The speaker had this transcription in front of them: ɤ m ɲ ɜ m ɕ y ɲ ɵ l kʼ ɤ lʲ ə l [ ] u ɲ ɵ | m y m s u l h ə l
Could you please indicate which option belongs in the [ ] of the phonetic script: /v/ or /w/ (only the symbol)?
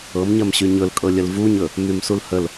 v